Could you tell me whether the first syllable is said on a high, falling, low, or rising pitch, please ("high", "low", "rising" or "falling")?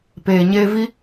low